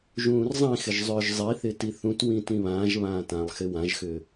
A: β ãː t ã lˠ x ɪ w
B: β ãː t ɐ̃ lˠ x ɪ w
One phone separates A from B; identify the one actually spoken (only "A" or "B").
A